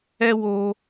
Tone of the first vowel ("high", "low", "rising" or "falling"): high